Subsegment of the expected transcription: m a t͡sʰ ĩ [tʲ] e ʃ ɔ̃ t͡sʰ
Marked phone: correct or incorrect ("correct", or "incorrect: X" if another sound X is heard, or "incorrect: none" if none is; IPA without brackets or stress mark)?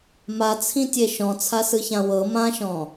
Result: correct